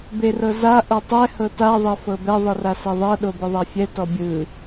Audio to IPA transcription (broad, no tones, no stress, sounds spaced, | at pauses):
b e r ɤ z a ʔ o tˤ ɛ h ɤ t a ðˤ ɛ f ɤ b ɛ ðˤ ɯ r a s ɛ ðˤ ɤ ɗ o b ɯ ðˤ a fʲ ɛ t ɔ bʲ ɯ